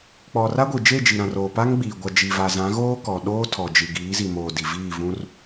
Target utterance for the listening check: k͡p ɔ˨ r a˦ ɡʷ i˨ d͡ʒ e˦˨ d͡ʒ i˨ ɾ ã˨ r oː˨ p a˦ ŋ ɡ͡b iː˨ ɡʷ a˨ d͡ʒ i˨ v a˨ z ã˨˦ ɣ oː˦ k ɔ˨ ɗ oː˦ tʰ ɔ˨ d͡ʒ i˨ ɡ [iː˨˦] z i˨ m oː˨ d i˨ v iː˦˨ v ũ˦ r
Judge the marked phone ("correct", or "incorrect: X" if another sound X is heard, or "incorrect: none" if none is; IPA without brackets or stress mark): correct